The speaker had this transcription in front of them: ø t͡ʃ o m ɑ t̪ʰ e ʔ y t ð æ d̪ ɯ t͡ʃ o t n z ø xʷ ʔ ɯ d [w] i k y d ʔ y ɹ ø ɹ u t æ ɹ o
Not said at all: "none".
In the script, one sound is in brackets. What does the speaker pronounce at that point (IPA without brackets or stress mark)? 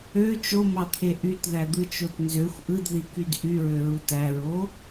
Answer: ð